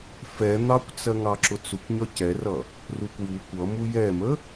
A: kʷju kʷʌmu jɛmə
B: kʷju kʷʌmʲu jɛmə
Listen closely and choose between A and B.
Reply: A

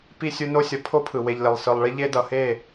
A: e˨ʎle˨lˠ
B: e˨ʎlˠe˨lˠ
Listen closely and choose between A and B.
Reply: A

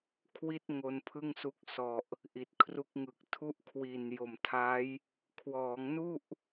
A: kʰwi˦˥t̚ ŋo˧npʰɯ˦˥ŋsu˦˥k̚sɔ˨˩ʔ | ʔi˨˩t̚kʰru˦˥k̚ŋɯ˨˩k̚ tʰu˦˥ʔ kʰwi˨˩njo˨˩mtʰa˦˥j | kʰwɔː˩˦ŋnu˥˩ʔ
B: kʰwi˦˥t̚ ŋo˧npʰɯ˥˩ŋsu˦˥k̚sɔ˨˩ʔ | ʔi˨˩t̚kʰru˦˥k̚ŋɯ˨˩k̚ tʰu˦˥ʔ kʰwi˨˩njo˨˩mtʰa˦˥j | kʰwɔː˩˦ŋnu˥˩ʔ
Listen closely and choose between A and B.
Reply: B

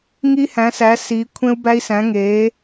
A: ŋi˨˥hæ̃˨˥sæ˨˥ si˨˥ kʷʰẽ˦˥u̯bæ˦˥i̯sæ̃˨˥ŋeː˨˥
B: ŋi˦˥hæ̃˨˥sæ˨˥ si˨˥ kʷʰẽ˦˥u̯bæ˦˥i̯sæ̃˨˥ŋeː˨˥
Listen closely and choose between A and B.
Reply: B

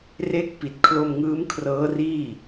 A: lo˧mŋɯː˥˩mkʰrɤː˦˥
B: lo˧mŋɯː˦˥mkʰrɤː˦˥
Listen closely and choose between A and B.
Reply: B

